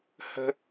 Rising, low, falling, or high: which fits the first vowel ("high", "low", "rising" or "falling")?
high